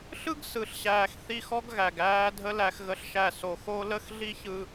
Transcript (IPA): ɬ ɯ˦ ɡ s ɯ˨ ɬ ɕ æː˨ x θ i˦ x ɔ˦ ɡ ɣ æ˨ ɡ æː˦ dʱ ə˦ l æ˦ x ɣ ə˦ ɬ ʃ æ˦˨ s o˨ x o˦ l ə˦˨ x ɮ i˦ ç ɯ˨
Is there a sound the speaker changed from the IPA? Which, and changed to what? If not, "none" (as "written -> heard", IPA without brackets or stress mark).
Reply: none